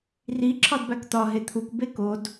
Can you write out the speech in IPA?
r i ǁʰ ɒ d b æ k t̪ ɒ ɦ e t̪ʰ u k b e k o d

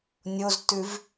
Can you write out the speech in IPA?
nʲ o z t ʉ v

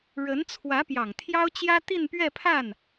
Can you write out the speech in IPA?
ɻ ə˧˥ n t͡sʰ w ä˧˥ p j ɑ˨˩ ŋ t̪ʰ j ɑ˥ ʊ̯ t͡ɕ j ä˥ t̪ i˥˧ n p ɥ ɛ˥˧ pʰ a˥˩ n

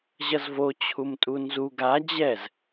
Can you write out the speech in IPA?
ʑ ʌ z v o t͡ɕʰ u m tʼ u n z u ɡ a d͡ʑ ɛ z

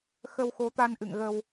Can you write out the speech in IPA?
x ə˧ w x o˨˦ t̪ a˧ n ʔ ɨ̰˧˨ ŋ ɣ ə˧ w

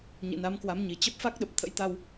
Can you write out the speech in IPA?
ɲ ḭ˧˨ n a˨˦ m k w a˨˦ m ɲ i˨˩ t͡ɕ ə˦˥ p̚ f a˦˥ k̚ ɗ ə˨˩ p̚ t̪ʰ ə̰˧˥ j t̪ a˧ w

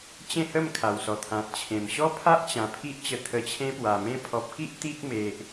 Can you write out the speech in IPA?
t͡ɕ ẽ˥˧ h ə˥˧ m kʰ a˨˩ w s ɔ˨˩ t̪ʰ ã˨ t̚ t͡ɕʰ ẽ˨˩ m ɕ ɔ˦ pʰ a˦ ʔ t͡ɕ ã˨˩ pʰ i˦ ʔ t͡ɕ ə˧ t̪ʰ ə˧ t͡ɕʰ ẽ˦ p w a˨˩ m ẽ˧ pʰ ɔ˨ p̚ k i˦ ʔ t̪ i˦ k̚ m e˨ ʔ

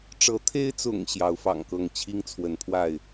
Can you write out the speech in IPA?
ʈ͡ʂ ɤ˨˦ t̪ʰ e˦ ɪ̯ t͡s ʊ̰˨˩ ŋ ɕ j ɑ˨˦ ʊ̯ f ɑ̰˨˩ ŋ k ɤ˥˨ ŋ t͡ɕʰ i˦ ŋ t͡sʰ w ə˨˦ n pʰ w a˥˨ ɪ̯

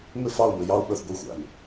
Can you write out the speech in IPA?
m ɪ˦˨ f ɑ˦˨ u̯ m ɪ˨ j ɑ˦ u̯ ɓ ə˞˨ θ ɡʷ i˦˨ xʷ æ̰˨ m

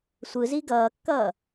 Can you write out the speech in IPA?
sʷ ɯ z i ɡ ʌː kː ʌː

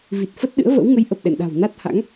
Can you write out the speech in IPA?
v i˨˩ t̚ f ə˦˥ t̚ ɗ ɨ̰˧˥ ə̯ v ə̰˧˥ w ŋ ə˨˦ j ʔ ə˨˩ p̚ ɗ ɛ̰˧˨ n ɗ a̤˨˩ w n a˦˥ t̚ h a̰˧˥ ŋ

